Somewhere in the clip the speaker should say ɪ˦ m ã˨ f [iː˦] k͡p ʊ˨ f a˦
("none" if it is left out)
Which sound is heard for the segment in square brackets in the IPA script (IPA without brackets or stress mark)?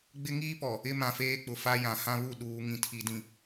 eː˦